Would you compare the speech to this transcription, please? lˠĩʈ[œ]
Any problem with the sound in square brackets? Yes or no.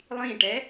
yes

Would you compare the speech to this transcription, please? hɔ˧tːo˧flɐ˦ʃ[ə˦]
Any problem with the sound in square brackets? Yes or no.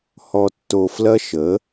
yes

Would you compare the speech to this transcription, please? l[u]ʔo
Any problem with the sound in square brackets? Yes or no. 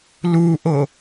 no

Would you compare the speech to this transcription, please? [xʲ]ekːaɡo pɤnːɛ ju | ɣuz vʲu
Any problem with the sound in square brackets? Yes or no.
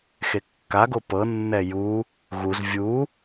yes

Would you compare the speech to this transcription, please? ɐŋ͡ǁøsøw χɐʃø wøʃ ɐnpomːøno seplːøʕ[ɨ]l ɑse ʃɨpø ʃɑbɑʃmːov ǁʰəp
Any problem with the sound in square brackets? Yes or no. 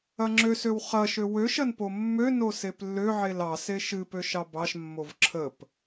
yes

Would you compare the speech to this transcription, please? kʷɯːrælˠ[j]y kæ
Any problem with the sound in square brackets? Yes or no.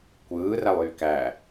no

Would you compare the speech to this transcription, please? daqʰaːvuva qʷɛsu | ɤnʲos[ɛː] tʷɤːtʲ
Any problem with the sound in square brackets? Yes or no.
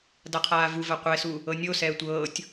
no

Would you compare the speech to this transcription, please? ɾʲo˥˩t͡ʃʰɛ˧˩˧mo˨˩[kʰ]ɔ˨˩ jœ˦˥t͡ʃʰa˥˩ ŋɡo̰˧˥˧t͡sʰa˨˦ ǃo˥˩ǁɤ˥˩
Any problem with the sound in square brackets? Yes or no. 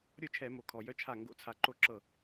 no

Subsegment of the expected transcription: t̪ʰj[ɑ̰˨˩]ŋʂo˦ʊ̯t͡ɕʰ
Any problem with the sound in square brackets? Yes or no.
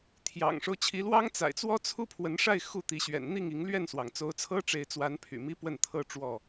no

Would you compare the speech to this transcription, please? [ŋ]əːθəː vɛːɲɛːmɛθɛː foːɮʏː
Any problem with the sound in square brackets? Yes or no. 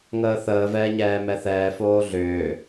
no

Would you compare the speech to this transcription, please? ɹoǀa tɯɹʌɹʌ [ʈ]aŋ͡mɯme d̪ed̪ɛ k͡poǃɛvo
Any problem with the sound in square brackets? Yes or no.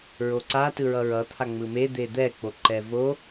yes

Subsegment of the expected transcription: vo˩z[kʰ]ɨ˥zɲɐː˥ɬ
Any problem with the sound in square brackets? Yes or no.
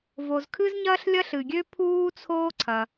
no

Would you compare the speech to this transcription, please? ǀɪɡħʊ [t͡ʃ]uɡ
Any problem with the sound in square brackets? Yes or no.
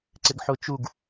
no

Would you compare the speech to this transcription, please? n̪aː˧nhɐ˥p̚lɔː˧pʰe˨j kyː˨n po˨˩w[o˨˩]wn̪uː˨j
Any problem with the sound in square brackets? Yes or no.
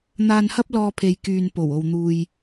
yes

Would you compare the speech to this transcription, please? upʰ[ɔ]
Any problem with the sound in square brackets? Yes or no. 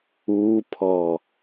no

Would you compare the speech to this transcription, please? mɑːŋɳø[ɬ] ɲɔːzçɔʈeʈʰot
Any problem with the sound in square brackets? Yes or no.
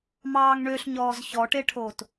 no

